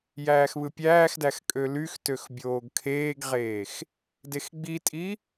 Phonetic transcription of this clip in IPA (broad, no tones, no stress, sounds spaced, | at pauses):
j æː x β ɯ pʲ æː x d æ x kʼ ø l y x t ø x bʲ oː ɡ kʰ eː ɡ ʁ eː x | d e x ɡ͡b i tʼ i